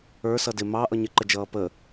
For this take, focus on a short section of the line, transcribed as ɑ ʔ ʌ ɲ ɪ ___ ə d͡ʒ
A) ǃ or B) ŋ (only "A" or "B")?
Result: A